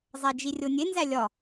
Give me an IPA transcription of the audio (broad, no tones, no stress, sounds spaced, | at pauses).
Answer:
zˤ æ d͡ʒ i rʲ o nʲ e n z æ lʲ ɒ